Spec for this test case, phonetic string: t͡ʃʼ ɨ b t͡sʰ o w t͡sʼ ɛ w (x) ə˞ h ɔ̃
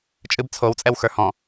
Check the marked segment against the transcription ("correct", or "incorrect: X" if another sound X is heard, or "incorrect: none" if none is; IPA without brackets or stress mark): correct